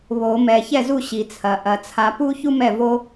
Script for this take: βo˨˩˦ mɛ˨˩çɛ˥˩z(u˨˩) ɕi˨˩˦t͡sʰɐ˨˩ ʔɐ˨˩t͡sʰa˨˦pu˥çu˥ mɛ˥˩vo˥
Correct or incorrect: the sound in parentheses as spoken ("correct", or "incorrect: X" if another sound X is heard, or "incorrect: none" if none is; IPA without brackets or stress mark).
incorrect: u˥˩